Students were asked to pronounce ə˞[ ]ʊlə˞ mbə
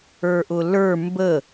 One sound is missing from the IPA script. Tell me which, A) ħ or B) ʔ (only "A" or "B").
B